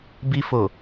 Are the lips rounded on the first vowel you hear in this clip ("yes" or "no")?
no